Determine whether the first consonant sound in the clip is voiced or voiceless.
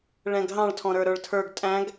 voiced